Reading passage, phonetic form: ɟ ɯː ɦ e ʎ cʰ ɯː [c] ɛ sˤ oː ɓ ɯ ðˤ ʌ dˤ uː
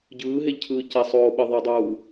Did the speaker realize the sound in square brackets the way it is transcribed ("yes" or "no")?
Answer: yes